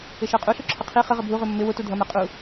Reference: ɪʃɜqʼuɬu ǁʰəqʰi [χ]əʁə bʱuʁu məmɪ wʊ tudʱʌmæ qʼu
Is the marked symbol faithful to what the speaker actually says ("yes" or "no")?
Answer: yes